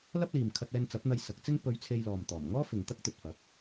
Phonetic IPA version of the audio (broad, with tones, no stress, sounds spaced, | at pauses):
l ɐ˥ p̚ l iː˨ m kʰ ɐ˧ t̚ ɛː˧ n t͡s ɐ˨˥ p̚ n̪ ɐ˧ j s ɐ˨˥ k̚ t͡s ɪ˥ ŋ p ɵ˨˧ ɥ t͡sʰ e˧ j l ɔː˨ m t̪ ɔː˨˩ m ŋ ɔː˥ f ɪ˨ ŋ t̪ ɐ˥ k̚ t̪ ɵ˨ t̚ f ɐ˨˥ k̚